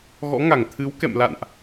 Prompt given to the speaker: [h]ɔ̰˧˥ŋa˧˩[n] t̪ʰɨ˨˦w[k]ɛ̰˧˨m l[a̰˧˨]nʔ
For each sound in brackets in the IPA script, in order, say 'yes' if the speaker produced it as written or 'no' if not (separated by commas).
no, no, yes, yes